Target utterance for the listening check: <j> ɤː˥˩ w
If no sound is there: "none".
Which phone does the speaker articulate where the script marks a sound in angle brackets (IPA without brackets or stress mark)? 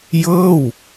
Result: j